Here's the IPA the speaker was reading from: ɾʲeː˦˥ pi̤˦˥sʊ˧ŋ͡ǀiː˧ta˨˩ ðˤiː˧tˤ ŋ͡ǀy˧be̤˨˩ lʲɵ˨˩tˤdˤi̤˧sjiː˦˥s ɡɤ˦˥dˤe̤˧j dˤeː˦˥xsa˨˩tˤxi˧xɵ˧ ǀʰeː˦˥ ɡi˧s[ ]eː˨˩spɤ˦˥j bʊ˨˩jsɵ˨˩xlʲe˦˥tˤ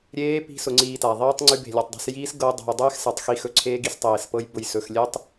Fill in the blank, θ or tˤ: tˤ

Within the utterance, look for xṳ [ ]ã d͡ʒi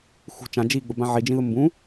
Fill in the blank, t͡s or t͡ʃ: t͡ʃ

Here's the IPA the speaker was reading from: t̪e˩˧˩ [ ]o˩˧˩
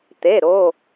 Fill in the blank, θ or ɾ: ɾ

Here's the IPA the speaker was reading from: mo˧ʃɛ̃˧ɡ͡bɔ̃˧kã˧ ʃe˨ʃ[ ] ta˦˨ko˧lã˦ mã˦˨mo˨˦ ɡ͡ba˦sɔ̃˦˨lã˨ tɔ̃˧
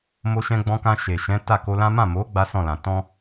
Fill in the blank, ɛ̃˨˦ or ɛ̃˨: ɛ̃˨˦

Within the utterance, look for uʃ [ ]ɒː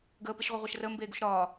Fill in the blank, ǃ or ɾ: ɾ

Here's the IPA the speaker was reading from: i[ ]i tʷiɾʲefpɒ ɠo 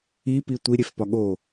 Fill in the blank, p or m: p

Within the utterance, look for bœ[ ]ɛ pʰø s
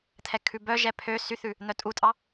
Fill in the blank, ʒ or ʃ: ʒ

